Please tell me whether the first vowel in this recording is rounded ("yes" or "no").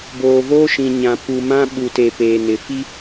yes